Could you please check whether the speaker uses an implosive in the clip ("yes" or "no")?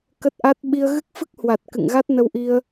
yes